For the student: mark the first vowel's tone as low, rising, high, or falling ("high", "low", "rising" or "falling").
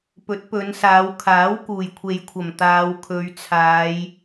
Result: rising